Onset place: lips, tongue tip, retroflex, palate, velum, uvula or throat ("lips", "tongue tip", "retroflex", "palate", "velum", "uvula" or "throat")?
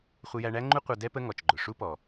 uvula